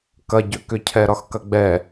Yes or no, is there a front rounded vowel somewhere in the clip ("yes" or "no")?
yes